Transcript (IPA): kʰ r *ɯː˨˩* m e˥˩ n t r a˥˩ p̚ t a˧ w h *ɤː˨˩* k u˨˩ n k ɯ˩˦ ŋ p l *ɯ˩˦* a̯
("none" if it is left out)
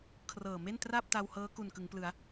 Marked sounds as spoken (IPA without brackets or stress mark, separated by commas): ɤː˨˩, ɤː˦˥, ɯ˩˦